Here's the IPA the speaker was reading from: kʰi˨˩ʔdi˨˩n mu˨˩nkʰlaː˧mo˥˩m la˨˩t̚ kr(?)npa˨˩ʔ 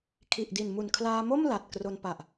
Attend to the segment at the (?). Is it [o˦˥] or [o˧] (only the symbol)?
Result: o˧